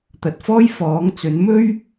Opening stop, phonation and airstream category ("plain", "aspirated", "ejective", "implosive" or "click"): plain